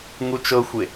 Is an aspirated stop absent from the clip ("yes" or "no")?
yes